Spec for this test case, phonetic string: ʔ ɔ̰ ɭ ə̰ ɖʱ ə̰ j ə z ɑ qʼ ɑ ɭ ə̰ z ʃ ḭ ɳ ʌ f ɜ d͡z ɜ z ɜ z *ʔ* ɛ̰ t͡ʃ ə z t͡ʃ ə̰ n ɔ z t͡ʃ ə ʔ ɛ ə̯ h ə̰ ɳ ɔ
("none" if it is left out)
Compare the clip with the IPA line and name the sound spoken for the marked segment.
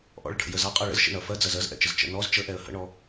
ʔ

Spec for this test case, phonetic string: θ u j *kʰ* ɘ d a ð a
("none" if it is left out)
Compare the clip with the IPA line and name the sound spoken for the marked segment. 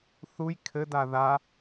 kʰ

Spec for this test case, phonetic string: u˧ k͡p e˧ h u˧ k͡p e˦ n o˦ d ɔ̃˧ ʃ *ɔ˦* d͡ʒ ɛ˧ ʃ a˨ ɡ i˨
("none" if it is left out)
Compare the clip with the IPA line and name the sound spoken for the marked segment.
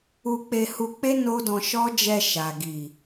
ɔ˦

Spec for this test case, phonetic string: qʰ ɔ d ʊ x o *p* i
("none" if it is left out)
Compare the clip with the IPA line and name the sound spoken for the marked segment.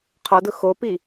p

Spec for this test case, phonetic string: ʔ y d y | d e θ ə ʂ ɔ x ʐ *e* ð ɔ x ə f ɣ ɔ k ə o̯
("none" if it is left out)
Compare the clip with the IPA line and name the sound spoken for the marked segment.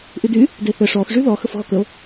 y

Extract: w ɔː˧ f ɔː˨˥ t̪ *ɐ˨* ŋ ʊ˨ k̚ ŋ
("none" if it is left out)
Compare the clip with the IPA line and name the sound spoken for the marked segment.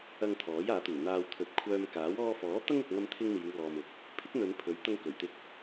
ɐ˥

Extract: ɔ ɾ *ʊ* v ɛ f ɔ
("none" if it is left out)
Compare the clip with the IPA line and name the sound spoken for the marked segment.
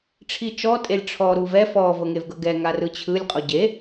u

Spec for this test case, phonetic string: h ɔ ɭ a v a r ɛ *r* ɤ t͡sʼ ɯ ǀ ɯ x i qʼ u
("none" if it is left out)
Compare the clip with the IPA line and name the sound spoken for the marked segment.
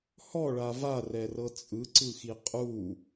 r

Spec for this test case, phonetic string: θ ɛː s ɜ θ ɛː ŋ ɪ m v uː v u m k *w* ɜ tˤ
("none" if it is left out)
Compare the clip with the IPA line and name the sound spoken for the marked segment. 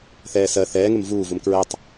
ɹ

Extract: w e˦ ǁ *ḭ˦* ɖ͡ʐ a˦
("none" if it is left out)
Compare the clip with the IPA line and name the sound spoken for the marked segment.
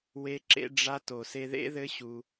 ḛ˦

